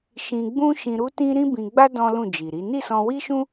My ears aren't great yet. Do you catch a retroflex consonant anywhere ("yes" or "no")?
no